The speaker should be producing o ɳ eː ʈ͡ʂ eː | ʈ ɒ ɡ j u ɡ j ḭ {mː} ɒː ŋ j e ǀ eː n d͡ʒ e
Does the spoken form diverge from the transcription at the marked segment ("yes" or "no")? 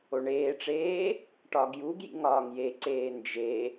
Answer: yes